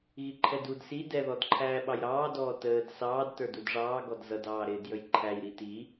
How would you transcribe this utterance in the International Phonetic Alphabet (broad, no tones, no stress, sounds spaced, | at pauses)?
ɣ i ǃʰ ɛ d u d s i d ɛ ð ɔ d ǃʰ æː ɓ ɑ j ɾ ɑː d ɔː t əː d s ɑː d t ə˞ d u d ʐ ɑː ɡ ɔ d z ʌ d ɑː ɾ ɪː d j ə j ǃʰ æ j ɾ i t i